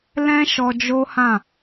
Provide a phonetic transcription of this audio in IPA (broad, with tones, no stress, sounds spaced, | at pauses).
l ɛ̃˦ ʃ ɔ˧ d͡ʒ o˦ h ã˦˨